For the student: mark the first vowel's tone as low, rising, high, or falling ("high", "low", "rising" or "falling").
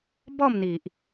falling